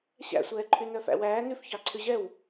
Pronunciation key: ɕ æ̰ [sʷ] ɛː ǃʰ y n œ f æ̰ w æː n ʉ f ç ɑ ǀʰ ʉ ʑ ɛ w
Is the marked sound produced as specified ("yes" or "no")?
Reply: yes